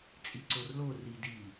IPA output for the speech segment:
t͡sʼ i ǀ o r l o r i d i

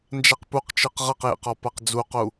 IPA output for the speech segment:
n d͡ʒ a q p u q t͡ʃ ɯ q ʁ ɤ q j ḛ q ɔ p a q d͡z u q u

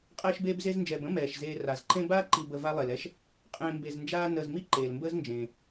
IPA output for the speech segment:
qʼ ɛː˦ ʃ b eː˦ b z e˦ z n d͡ʒ ɛː˨ b ə̃˥ m ɛː˩ ʃ z eː˨ r a˩ z ǃ ẽ˦ b aː˥ ǃ i˨ b ə˨ v a˦ lˠ e˩ l ɛ˥ ʃ | qʼ ẽː˨ m b e˨ z n d͡ʒ aː˦ n əː˨ z m i˥ ǃ eː˩ l m b əː˥ z n d͡ʒ ẽː˩

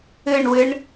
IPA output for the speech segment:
ɨ ɳ w ɨ ɳ

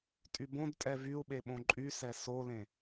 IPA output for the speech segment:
tʼ y b õ d tʼ ɛ v y u̯ ɓ e ɓ õ ǃʼ y s ɛ s o l ẽ

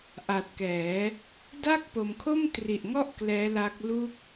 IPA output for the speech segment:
ʔ a˨˩ t̚ k ɛː˩˦ | d a˥˩ k̚ p o˧ m kʰ o˥˩ m t r i˨˩ ʔ ŋ ɔ˥˩ ʔ k l ɛː˦˥ l a˦˥ k̚ l u˥˩ k̚

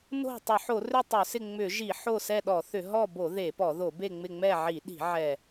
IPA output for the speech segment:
n o̤˦˨ tˤ ʏ˧˩˧ ħ o˧˩˧ r ʏ˦˨ tˤ ʏ˧˩˧ s ɪ˦˨ ŋ͡m ʏ˧˩˧ ʒ i˧˩˧ ħ o˦˨ s ɛ˦˨ ɗ ɔ˧˩˧ θ ʏ˧˩˧ ɦ ɔ˦˨ b o˧˩˧ ð e˧˩˧ p ɔ˧˩˧ ð o˧˩˧ b e˦˨ ŋ͡m ɪ˦˨ ŋ͡m ɛ˦˨ ʕ i˧˩˧ ɗ i̤˧˩˧ ʕ ɛ˦˨

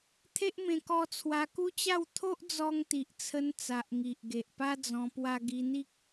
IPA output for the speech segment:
t̪ʰ e˦ ʔ m ẽ˧ k ɔ˧ t͡sʰ w a˧ k u˦ t͡ɕ a˥˧ w t̪ʰ o˦ ʔ d͡z ɔ˧ ŋ t̪ i˨ ʔ t͡sʰ ə˧ n t͡s a˨ ʔ ŋ i˨ ʔ ɡ e˨ ʔ p a˦ d͡z ɔ̃˧ p w a˧ ɡ i˧ n̪ i˦ k̚

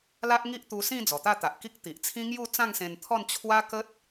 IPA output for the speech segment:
l a˦ ʔ ŋ i˦ ʔ t̪ u˧ s ĩ˥˧ d͡z ɔ˨˩ t̪ a˥˧ t̪ a˨ ʔ k i˦ k̚ t̪ i˨ ʔ t͡sʰ ĩ˦ ŋ j u˥˧ t͡s ã˥˧ ŋ s ẽ˧ n t̪ʰ ɔ˥˧ n t͡ɕʰ w a˦ k ə˦ t̚

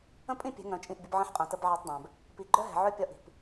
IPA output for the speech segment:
ə̃˦ pʼ ĩ˦ pʲ ɛ̤˨˦ ŋ œ̃˨ t͡ʃʼ ĩ˦˨ ʔ bʲ ə˦ b ʕ ə̃˦ ħ qʼ œ̃˨ t ə˦ b ʕ ɛː˦ tˤ dˤ œ̃ː˨ b | p i˨ ɡ͡ǃ œ˦ ɦ ɛ̤˨ ʕ œ˦ pʲ ɒ˦ ʔ i̤˨ p

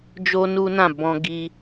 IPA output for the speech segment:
d͡ʒ o˦ n u˦ n ã˦˨ b ɔ̃˧ ɡ i˧

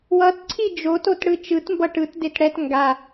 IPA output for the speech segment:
w ʌ t ǀʰ i d͡ʒ o t o t ɽ ɯ t͡ʃ ɯ t m b ʌ ʈ ɯ t d e t ɽ ɛ t ŋ ɡ a

